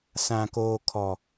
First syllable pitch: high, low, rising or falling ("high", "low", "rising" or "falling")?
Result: low